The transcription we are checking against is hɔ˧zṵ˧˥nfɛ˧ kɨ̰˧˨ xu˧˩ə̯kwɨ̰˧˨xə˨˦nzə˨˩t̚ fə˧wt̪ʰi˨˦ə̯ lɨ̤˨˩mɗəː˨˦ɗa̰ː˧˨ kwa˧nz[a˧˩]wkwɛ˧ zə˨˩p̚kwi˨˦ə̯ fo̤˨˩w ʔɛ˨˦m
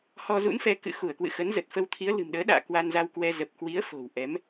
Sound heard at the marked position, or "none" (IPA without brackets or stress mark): a˧